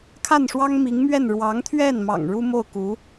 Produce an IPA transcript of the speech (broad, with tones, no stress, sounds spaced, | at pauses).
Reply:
kʰ a˥˩ n ʂ w ɑ˥ ŋ m i˧˥ ŋ m ɥ ɛ˥˩ n ɻ w ɑ˧˥ ŋ t̪ʰ ɥ ɛ˥˩ n m ɑ̰˨˩ ŋ ɻ u˥ m o˥˩ ʊ̯ k u˧˥